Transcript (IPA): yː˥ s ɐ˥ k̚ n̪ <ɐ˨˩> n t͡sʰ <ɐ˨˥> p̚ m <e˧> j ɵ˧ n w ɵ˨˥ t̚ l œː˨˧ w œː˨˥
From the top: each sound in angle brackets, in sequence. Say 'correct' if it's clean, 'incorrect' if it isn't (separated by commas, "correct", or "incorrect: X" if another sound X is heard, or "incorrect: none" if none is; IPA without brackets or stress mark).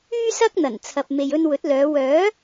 correct, incorrect: ɐ˨, incorrect: e˨